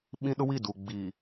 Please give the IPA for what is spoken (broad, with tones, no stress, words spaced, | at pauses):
ɓĩ˦ɗʊ˦wi˦˨du˨ ɡ͡biː˨